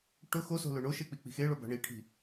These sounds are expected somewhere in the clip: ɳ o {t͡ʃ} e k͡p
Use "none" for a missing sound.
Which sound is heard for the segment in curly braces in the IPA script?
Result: ʃ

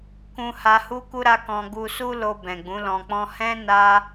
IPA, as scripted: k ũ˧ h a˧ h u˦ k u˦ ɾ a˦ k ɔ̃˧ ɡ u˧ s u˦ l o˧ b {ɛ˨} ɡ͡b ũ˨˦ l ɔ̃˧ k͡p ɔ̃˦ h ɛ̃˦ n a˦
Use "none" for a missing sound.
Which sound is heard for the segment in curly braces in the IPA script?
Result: ɛ̃˨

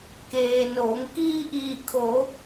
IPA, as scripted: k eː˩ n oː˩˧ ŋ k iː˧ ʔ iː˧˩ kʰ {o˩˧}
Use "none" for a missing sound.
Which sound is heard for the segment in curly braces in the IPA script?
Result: o˩˧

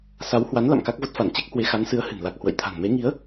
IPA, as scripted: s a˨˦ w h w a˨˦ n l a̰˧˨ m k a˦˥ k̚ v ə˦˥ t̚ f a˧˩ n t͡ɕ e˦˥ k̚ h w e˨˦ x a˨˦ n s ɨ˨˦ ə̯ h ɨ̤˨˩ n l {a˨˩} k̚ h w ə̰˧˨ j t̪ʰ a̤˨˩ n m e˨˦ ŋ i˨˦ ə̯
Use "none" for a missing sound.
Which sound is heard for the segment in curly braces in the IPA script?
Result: a˨˩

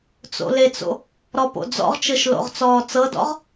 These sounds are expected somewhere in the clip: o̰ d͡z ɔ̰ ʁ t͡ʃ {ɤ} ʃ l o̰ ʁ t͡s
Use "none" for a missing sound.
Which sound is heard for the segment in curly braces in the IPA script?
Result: ɤ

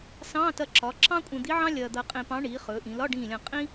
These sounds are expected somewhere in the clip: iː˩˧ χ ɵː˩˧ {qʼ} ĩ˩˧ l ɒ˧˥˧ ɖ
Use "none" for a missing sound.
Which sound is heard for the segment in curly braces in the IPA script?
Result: ʔ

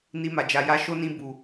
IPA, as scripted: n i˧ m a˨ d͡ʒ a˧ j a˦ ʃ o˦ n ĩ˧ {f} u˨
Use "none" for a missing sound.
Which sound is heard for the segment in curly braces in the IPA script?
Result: b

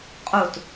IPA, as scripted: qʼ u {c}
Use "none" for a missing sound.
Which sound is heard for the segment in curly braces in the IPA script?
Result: t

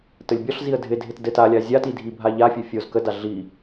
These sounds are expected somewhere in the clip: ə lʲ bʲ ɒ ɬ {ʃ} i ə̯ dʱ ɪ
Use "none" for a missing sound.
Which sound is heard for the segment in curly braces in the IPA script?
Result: z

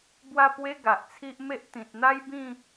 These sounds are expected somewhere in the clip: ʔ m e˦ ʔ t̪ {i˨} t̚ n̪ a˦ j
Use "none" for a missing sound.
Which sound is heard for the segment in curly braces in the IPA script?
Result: ĩ˨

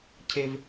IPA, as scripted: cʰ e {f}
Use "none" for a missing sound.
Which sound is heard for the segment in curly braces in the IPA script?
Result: v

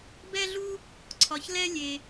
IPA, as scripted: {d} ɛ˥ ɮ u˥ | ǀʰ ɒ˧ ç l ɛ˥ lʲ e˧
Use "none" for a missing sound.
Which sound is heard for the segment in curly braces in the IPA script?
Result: b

